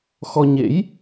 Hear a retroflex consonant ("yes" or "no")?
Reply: no